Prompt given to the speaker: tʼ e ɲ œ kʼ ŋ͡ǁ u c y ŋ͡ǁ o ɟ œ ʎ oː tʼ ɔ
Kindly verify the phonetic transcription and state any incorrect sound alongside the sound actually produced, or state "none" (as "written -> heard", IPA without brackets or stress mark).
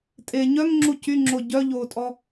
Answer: kʼ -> ŋ